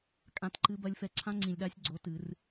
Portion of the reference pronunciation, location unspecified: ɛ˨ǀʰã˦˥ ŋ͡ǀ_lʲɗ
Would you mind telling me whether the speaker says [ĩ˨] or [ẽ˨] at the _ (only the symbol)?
ĩ˨